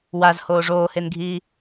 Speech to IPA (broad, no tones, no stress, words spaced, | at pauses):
wazhoː ʐoːhenɡʱiː